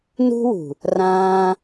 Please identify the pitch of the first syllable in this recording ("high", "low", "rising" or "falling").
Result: high